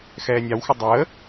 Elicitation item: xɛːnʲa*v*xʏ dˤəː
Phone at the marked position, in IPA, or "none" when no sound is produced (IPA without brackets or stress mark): w